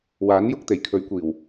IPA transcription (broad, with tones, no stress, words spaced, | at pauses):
waː˨˥njʊ˨˥k̚t̪e˨˩j kʰɵ˨˥ɥkʷiː˨˩w